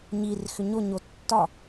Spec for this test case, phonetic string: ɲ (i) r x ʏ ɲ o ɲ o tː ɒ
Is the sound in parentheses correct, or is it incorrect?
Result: correct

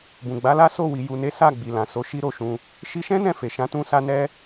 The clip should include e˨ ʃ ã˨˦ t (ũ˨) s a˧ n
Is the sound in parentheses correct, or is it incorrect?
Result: incorrect: ũ˧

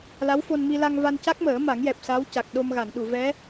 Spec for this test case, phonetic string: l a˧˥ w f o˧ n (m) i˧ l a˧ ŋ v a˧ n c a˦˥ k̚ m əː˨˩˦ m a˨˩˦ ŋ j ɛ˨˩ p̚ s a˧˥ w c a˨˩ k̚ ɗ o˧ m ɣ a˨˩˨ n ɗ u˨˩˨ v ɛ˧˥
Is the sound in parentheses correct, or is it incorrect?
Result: correct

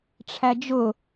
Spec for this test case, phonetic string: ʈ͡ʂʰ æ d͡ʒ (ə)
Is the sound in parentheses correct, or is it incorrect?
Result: incorrect: ʊ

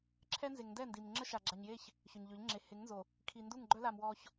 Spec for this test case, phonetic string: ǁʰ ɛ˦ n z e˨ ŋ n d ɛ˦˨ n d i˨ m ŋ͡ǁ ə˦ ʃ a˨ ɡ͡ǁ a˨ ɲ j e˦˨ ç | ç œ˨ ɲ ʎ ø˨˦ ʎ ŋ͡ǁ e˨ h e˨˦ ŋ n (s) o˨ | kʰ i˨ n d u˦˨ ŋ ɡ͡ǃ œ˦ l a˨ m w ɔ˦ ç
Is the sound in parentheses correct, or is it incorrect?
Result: incorrect: z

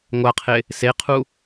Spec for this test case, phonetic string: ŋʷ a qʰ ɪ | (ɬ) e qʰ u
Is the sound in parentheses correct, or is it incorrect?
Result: incorrect: s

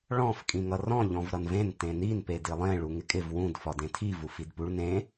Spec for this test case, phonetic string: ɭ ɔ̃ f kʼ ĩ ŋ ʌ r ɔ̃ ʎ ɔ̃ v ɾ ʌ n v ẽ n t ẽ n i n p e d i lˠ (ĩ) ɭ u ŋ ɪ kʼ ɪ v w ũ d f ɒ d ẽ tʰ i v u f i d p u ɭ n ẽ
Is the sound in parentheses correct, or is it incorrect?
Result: incorrect: ẽ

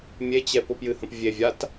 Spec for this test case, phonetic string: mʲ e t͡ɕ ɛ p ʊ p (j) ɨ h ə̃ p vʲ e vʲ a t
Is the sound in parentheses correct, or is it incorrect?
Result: correct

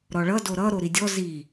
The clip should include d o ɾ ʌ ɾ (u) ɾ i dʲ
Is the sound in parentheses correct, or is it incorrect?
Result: incorrect: o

